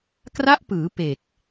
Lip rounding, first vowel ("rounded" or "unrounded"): unrounded